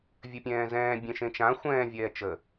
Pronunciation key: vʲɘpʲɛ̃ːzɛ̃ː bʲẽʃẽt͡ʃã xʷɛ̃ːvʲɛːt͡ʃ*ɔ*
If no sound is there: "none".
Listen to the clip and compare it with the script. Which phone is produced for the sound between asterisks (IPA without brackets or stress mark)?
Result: ə